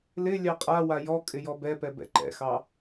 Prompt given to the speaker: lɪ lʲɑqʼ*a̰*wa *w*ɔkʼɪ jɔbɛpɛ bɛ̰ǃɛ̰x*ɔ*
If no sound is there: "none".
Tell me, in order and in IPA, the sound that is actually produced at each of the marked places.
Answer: a, j, ɑ

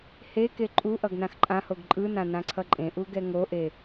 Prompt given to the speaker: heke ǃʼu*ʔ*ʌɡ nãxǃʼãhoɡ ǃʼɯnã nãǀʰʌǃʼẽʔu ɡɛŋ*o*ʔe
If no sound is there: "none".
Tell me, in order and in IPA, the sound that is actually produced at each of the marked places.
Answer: ʔ, o

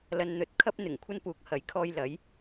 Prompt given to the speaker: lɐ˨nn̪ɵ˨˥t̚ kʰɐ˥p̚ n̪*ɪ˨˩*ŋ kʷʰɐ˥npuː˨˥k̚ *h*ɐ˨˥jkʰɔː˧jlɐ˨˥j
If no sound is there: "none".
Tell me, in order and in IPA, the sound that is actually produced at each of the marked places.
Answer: ɪ˨˩, h

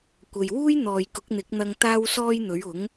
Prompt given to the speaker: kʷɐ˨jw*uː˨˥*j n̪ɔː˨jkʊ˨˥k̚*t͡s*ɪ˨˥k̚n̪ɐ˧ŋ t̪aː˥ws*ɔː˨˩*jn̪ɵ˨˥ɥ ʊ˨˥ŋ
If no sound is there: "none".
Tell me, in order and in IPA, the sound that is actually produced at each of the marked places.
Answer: uː˥, n̪, ɔː˥

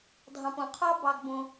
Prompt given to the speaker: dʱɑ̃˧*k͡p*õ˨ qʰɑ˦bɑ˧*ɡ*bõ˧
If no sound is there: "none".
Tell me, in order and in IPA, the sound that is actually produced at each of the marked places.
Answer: p, ɡ

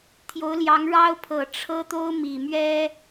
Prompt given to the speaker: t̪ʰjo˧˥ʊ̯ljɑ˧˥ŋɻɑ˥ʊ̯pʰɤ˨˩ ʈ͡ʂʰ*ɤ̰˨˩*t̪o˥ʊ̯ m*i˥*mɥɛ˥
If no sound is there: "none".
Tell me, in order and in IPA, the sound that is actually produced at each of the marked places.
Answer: ɤ˥, i˨˩

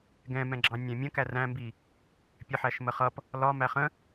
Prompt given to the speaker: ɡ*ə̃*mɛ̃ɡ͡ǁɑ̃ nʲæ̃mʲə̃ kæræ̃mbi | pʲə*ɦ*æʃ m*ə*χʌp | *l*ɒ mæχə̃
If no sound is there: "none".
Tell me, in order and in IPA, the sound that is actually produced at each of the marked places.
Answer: ɛ̃, ħ, ə, l

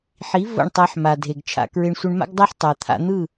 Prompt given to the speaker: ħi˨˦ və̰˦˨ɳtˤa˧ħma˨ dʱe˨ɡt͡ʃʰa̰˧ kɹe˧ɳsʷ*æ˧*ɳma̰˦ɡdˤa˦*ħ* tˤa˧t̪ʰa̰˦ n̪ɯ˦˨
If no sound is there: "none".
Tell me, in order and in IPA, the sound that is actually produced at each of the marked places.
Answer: ə˧, ħ

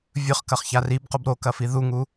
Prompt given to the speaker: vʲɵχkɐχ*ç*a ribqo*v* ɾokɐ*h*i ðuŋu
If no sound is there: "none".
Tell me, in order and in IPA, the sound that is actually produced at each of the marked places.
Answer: ç, b, f

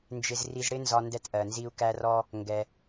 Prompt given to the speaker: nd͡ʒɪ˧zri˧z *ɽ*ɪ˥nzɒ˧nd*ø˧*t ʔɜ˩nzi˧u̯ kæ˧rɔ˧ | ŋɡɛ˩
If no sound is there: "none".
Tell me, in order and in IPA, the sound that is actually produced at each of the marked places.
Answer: ɽ, ɛ˧

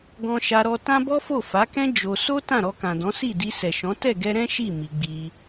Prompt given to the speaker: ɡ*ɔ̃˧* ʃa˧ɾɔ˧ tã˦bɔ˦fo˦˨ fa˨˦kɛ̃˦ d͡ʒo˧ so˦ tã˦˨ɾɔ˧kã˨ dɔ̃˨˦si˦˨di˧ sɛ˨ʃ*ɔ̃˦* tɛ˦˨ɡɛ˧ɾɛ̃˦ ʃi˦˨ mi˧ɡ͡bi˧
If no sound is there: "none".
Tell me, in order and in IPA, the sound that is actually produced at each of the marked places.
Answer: ɔ̃˧, ɔ̃˨˦

